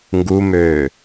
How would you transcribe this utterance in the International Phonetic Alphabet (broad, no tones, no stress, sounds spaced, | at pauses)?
ŋ ɡ u m øː